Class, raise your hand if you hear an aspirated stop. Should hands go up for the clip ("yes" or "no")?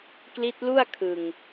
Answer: yes